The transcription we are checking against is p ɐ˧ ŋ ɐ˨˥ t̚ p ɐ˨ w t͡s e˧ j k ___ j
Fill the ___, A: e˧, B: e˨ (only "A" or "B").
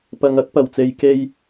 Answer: A